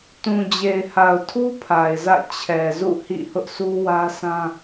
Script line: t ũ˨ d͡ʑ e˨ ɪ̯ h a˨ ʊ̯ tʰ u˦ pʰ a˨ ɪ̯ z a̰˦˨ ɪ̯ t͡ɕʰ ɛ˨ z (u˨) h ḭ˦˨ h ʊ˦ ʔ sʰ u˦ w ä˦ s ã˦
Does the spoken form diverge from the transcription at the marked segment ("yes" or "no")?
yes